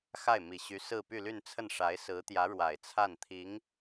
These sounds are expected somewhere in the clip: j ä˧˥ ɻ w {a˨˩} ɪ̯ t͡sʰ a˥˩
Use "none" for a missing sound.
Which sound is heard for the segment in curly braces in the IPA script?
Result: a˨˩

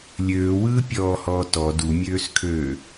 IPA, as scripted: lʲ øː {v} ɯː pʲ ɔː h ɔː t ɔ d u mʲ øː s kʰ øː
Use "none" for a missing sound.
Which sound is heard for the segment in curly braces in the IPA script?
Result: w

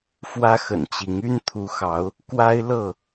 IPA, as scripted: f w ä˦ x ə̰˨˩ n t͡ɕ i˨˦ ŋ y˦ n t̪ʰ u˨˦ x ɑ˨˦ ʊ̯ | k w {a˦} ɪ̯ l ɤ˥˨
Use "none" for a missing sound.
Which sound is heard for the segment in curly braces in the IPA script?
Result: a˦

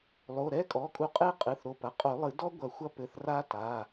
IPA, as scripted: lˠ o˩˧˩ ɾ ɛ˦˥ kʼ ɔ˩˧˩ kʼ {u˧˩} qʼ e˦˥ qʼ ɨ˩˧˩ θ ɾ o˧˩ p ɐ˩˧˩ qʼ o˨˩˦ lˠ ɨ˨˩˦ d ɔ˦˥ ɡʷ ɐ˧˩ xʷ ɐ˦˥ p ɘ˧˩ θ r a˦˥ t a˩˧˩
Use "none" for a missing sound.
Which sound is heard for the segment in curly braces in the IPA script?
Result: u˧˩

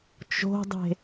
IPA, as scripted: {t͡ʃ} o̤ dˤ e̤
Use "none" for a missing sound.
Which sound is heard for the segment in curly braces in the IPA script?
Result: t͡ʃ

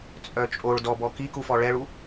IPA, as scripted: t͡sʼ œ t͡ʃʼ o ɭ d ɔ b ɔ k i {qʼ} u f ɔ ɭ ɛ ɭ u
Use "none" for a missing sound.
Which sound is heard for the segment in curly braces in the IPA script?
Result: k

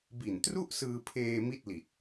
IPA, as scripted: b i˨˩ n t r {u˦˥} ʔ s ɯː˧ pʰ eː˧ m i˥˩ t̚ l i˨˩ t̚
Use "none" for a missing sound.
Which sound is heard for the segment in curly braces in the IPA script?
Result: u˥˩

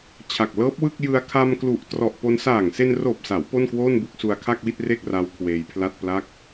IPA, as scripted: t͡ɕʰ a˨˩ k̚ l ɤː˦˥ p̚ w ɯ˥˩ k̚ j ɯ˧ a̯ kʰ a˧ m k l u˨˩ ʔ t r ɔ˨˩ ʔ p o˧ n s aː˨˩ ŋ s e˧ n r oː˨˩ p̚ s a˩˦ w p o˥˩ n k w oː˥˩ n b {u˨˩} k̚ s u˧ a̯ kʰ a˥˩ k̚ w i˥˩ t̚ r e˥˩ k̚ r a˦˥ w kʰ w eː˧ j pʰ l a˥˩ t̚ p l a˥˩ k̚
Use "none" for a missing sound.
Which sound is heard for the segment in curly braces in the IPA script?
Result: u˥˩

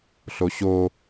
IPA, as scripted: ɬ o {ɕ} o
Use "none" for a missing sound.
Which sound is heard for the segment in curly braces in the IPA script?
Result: ɕ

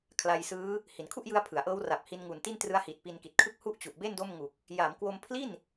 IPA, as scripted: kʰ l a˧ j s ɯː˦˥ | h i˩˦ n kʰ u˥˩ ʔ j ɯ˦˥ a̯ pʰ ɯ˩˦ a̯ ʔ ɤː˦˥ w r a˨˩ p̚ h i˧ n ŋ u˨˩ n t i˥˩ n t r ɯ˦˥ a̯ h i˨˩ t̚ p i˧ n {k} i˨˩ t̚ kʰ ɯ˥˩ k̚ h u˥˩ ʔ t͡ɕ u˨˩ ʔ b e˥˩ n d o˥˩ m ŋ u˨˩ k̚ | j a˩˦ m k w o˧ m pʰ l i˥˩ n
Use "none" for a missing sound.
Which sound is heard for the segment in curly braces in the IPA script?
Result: k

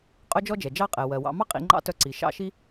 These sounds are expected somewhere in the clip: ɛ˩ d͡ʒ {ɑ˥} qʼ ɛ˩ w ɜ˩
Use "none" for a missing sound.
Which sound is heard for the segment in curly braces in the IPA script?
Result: ɑ˥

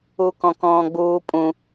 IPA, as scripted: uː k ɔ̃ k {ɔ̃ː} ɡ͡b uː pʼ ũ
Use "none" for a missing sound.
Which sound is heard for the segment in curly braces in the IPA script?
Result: ɔ̃ː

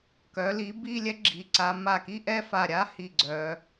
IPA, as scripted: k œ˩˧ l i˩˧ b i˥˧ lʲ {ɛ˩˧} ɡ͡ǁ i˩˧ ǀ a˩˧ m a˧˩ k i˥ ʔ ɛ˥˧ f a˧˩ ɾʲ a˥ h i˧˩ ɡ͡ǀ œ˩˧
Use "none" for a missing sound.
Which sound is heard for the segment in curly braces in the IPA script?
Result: ɛ˥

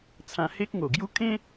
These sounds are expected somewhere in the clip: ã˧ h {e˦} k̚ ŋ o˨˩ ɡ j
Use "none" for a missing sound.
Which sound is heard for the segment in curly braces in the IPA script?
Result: e˦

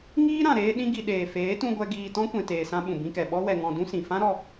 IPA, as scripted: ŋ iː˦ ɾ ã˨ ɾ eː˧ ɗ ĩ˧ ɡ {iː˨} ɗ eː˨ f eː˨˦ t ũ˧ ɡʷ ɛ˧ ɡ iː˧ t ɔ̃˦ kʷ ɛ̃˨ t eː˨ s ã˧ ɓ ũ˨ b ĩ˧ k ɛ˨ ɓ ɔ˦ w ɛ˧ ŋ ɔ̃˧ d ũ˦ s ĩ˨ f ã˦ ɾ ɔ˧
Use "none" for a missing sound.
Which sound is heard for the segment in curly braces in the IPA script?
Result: i˨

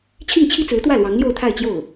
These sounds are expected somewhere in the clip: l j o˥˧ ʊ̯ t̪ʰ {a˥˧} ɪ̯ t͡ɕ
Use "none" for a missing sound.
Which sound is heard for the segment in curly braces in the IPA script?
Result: a˥˧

